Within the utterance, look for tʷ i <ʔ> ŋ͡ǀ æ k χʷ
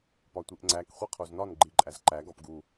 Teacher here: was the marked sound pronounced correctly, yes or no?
yes